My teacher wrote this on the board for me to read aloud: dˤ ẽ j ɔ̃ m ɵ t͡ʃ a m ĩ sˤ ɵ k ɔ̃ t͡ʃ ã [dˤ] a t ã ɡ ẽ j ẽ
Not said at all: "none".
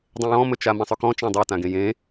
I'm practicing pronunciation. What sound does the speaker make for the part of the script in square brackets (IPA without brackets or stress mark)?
dˤ